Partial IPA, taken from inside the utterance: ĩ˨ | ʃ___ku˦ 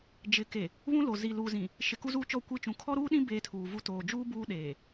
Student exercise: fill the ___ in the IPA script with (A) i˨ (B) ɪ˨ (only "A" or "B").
B